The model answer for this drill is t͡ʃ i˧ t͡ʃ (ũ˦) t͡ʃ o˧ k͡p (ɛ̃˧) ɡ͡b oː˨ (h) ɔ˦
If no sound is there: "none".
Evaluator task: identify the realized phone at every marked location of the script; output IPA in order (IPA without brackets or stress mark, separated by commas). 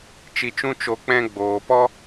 ũ˦, ɛ̃˧, p